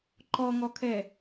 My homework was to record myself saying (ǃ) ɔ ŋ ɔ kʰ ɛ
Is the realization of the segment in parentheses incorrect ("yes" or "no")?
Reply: no